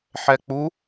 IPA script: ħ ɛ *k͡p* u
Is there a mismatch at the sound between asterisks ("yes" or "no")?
no